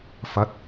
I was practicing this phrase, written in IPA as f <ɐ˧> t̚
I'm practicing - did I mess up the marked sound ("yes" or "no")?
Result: no